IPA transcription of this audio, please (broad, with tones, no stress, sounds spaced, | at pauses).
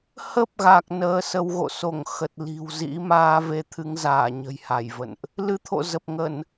h ə˦˥ p̚ ɣ a˨˩ k̚ n əː˧ s ə˧ w ɣ o̰˧˨ s o˧˩ ŋ x ə˨˩ t̚ l i̤˨˩ w z ḭ˧˥ m aː˧ v e˨˦ t̪ʰ ɨ˨˦ ŋ z aː˧˩ ɲ ə̤˨˩ j h a˧˩ j v ə̰˧˨ n ʔ | l ɨ˨˦ t̪ʰ o̰˧˨ z ə˨˩ p̚ ŋ ə˧˩˨ n